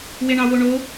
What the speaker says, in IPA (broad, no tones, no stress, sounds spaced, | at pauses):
w e ɳ ɑ w o ɳ o